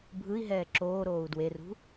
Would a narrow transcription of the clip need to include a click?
yes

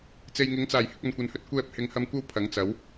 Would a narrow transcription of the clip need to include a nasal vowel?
no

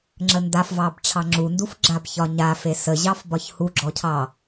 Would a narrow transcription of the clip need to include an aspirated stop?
yes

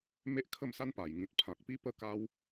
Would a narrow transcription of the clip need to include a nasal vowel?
yes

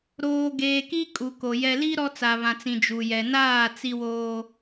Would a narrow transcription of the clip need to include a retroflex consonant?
no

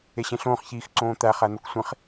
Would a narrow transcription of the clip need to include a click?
yes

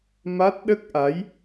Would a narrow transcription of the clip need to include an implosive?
yes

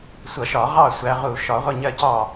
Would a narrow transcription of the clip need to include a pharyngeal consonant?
no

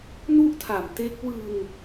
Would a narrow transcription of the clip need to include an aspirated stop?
yes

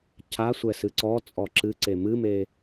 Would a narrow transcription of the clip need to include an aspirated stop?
yes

